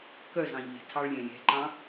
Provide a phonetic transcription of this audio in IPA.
k œ z ɑ̃ ʎ e̤ tʰ ɑ ɭ lʲ ɛ̃ lʲ ɛ̤ ǃ ɑ̃

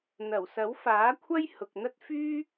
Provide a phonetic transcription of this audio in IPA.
n̪ ɐ˨˩ w s ɐ˨˥ w f aː˨˥ kʷʰ ɐ˥ j h ʊ˨ k̚ n̪ ɐ˥ t̚ f yː˥

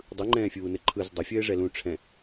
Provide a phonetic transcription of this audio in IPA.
dˤ ɯ ŋ͡ǃ ɛ̃ː fʲ uː n ɘ ǃʰ ɯ z dˤ ɘ fʲ ɘː ʐ ɛ l ũ ʈ͡ʂʰ ɛ̃

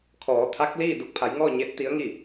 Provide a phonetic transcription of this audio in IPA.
kʰ ɔː˩˧ t̪ʰ a˧˥ k̚ l iː˥˨ d u˧ k̚ pʰ a˩˧ j ŋ ɔː˥˨ ɲ e˧˥ t̚ t̪ i˧˥ ə̯ ŋ i˥˨

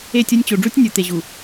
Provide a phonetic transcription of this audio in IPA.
e˦˨ tʲ o˦ nʲ t͡ɕ o˨ ɖ͡ʐ u˦ tʲ nʲ u˨ t̪ e˨ ʑ u˨

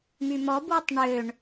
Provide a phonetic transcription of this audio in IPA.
m y m ɔ b w ɵ tˤ ɳ ø ɳ

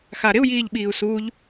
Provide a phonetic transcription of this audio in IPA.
x a ɾ ɪ u̯ j iː ʎ ɓ iː u̯ s uː ʎ

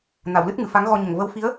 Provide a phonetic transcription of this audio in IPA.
n a˨˩˨ w l ɨ˦˥ t̚ ŋ ɨ˨˩˨ f a˧˥ ŋ ɣ ɔ˧ ɲ ə˨˩ ŋ v ə˧˥ w f i˧˥ ə̯

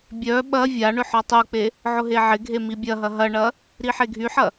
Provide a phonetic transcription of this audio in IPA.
bʲ œ ɓ ɐ vʲ a ɳ ʏ ħ ɔ tˤ u k͡p e | ʕ ʊ ɦ e ʕ ɪ ɡʱ e m i bʲ ɐ ɦ ɐ ɦ ɐ ɳ ɐ | ɾ i ħ e ɡʱ y ħ ɐ

